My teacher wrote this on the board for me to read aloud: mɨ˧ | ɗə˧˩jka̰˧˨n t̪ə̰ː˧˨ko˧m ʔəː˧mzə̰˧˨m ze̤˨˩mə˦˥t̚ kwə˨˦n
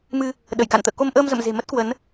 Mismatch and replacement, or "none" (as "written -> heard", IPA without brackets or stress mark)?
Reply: none